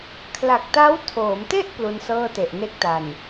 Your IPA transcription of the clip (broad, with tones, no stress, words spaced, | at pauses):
kʰla˨˩k̚ta˦˥wtʰoː˩˦mte˥˩ʔ plu˧n sɤː˥˩te˨˩ʔne˥˩k̚ta˨˩n